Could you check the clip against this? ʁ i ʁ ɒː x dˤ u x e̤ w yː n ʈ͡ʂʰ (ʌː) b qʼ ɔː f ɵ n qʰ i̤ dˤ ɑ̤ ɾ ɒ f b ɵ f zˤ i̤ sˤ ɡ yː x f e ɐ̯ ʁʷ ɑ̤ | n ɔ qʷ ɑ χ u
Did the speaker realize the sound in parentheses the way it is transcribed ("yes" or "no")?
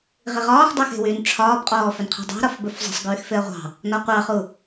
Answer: no